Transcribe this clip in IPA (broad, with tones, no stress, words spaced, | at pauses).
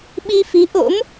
ɓi˧fi˨˦ʔo̰˧˥m